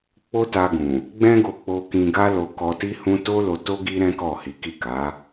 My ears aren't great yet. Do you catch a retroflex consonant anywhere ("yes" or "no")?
no